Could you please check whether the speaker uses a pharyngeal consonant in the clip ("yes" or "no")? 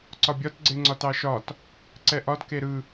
no